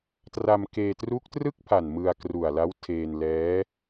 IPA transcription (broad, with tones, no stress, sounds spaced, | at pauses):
t r a˧ m k eː˧ t r u˦˥ k̚ t r ɯ˥˩ k̚ pʰ a˨˩ n m ɯ˧ a̯ k r u˨˩ a̯ l a˦˥ w tʰ eː˧ n l ɛː˦˥